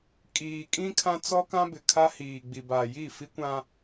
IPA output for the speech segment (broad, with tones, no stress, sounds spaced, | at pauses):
kʼ iː˨ kʼ ĩ˦ kʰ ã˦ t͡s ɔ˦ k ã˦ b ɪ˨ kʰ a˦ h iː˨ ɡ͡b i˨ b a˨ j i˦˨ f i˦ kʷ ã˦